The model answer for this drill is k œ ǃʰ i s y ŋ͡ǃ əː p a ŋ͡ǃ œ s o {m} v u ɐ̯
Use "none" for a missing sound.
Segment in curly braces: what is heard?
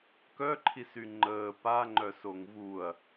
ŋ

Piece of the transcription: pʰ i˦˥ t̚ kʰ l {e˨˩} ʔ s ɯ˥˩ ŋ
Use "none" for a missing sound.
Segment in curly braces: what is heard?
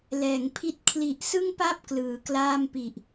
i˨˩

